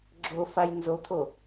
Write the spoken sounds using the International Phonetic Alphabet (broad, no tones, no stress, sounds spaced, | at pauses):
ɡ͡ǁ o f a j n z o t̪ʰ o